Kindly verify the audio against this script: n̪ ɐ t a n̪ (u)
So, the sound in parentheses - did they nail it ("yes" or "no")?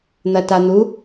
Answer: yes